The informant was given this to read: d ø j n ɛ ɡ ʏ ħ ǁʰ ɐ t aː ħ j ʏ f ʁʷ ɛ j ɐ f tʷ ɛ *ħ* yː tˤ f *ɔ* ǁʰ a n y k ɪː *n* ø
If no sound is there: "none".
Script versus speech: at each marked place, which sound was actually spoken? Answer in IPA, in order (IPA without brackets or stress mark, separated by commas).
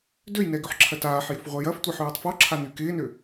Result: ħ, ɔ, n